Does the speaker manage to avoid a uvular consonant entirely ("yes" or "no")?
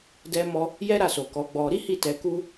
yes